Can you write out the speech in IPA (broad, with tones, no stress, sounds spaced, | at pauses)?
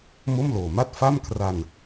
m o˥˩ m l oː˨˩ m a˥˩ t̚ f a˥˩ m kʰ r a˧ n